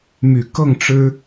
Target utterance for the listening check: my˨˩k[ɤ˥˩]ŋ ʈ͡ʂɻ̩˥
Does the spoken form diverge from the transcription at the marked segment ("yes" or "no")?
no